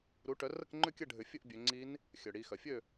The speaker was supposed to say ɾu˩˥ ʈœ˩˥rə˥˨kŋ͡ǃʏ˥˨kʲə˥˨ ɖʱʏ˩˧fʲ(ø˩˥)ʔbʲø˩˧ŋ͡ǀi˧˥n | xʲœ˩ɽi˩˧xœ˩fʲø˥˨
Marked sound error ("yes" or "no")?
yes